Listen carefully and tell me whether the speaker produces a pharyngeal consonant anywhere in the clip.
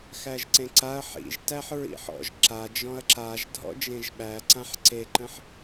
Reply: yes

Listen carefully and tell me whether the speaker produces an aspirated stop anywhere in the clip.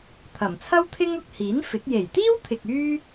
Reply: yes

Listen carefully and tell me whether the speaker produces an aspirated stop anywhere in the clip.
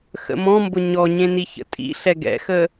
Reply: no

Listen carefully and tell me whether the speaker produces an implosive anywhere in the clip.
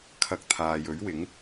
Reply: no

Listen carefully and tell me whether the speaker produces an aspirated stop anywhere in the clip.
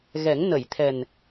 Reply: yes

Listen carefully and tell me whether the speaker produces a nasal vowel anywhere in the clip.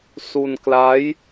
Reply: no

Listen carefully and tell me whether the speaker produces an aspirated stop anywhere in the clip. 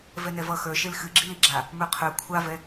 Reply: yes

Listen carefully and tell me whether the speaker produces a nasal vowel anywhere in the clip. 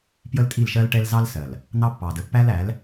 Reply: no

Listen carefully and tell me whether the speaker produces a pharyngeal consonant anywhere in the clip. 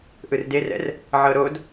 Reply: yes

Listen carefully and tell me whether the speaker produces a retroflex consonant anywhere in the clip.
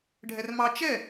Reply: yes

